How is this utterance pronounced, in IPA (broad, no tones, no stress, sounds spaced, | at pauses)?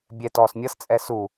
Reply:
bʲ ɛ t ɔː s mʲ ʌ s t͡sʼ ɛ s u